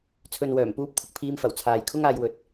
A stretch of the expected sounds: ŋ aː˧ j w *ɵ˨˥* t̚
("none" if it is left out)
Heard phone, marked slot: ɵ˨˥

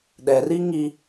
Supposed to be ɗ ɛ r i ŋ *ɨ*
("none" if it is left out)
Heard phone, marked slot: i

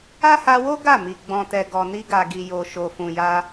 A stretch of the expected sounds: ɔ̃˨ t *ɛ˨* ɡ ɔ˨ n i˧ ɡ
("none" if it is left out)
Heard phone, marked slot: ɛ˨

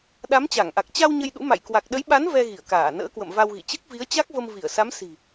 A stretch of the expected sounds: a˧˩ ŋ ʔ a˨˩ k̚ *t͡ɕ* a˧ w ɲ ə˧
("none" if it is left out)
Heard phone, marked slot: t͡ɕ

